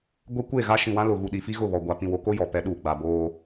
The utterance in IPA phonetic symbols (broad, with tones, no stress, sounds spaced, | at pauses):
ɡʷ ɛ˦ kʷ e˦˨ ɣ a˦ ʃ ĩ˨ w ã˦ l ʊ˨ ɣ u˨ ɗ i˨ f i˦ ɣ ʊ˦˨ β ɔ˨ ɡʷ a˨ p ĩ˨ w o˨˦ k o˦ j ɔ˨ p ɛ˨˦ ɗ uː˨ ɡ͡b a˨ b oː˦